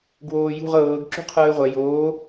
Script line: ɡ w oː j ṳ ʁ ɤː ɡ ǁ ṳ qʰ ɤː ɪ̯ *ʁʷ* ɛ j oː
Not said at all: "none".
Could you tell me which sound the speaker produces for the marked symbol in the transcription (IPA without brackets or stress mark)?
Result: ʁʷ